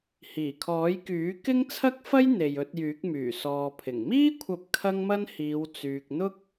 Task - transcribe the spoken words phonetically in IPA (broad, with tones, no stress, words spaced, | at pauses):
hiː˨˩kʰɔː˨˥jkyː˨˥ kɪ˥ŋt͡sʰɐ˥k̚fɐ˥j n̪e˨jɵ˧t̚jyː˨˥k̚myː˨˩ sɔː˨pʰɪ˨˩ŋ miː˥kʷʰɐ˨˥p̚ kʰɐ˥ŋmɐ˥nhiː˨˧w t͡syː˨k̚n̪ʊ˥k̚